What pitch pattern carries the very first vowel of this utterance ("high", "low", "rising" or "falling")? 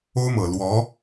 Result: high